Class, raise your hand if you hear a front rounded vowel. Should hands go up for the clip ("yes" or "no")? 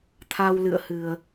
no